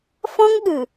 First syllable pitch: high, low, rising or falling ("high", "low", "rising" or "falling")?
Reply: high